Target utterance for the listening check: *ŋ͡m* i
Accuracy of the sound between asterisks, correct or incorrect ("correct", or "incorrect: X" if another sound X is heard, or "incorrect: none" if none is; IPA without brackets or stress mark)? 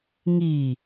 incorrect: ŋ